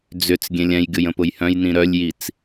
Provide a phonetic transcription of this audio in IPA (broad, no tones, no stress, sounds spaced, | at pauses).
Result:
d͡z ʏ t͡s ɡʲ ẽ lʲ ɛ̃ j ɡʲ ʊ j ə̃ p ʊ j h œ̃ j n ĩ ɾ œ lʲ j i t͡s